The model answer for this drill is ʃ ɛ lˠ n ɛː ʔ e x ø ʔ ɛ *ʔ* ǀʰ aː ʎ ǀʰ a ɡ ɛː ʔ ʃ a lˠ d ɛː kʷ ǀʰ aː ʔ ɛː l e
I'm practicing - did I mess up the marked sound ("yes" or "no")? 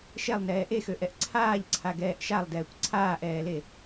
no